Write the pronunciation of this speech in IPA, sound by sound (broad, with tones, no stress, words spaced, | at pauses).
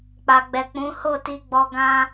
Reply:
k͡pa˨ɡ͡bɛ˨k͡pũ˨˦ ho˦˨ti˧ɡ͡bɔ˧ ɡã˧